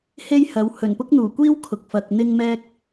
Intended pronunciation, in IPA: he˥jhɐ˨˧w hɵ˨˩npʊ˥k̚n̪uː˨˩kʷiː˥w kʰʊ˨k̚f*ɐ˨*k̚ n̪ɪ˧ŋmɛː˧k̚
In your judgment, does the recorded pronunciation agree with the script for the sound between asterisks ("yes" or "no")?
yes